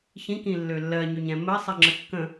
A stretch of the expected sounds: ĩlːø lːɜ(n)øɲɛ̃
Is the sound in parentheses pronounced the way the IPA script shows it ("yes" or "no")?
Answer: no